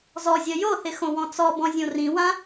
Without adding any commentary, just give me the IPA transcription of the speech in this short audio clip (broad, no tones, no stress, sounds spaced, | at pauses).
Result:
z ɔ zʲ ɜ j o θ ɪ x õ w ɔ̃ t͡s ɔ b ɔ̃ zʲ õ r ĩ w ã